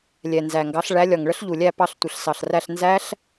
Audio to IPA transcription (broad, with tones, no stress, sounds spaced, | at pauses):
lʲ ɛ˨˩ n z æ˨˩ ŋ ɡ ɑ˨˥ ɬ ɭ æ˨˥ lʲ ɒ˨˩ ŋ ɭ ə˦˥ ɬ ʎ u˨˩ lʲ æ˥˨ p ɑ˥˨ ɬ tʷ ə˨˩ ɬ s ɑ˨˩ ɬ r æ˥˨ ɬ n z æ˦˥ ɬ